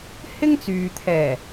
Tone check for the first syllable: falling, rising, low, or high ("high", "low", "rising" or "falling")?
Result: high